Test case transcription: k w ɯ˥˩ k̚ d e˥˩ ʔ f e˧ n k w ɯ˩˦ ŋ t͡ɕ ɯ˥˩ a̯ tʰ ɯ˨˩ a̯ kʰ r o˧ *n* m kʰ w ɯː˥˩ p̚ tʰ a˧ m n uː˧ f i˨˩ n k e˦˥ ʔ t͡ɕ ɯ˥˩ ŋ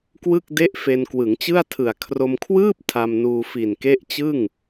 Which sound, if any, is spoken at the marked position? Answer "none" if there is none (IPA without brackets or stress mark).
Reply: none